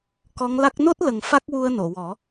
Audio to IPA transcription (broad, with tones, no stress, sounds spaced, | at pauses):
k ɔ˧˥ ŋ l a˦˥ k̚ n o˦˥ t̚ l ə˨˩ ŋ f a˦˥ k̚ w u˧ ə̯ n o˨˩˨ w ɔ˨˩˦